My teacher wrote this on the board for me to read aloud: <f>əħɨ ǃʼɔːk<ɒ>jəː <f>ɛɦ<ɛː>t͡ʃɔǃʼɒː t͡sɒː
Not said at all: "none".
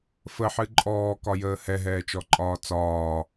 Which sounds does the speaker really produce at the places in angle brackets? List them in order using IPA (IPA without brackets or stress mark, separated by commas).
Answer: f, ɒ, h, ɛː